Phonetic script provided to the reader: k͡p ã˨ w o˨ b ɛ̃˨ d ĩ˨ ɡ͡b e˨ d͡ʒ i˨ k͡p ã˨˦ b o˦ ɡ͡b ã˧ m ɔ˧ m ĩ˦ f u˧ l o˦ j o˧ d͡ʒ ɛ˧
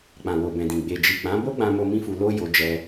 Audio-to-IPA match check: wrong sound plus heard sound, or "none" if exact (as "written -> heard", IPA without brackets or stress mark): ɔ˧ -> o˧